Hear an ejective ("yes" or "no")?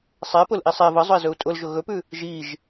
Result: yes